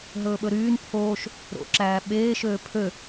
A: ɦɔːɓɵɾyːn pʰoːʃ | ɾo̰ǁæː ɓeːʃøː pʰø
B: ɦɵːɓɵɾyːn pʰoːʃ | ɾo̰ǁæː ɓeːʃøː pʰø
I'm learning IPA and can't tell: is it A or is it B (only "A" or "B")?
B